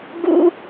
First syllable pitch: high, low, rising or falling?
high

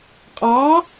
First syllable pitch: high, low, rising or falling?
rising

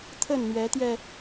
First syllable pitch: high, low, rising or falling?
falling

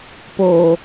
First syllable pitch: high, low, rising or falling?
low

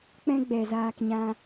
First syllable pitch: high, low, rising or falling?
high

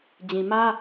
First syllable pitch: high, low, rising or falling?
low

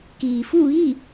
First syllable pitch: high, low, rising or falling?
low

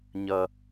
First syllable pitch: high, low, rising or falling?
low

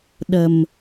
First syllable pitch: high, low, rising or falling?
low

